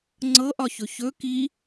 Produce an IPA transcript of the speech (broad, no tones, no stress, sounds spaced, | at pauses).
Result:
ŋ͡ǀ ɤ ʔ ɒ ç ɵ ç ɵ k i